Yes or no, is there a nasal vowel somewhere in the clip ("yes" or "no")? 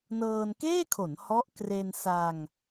no